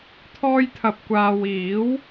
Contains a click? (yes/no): no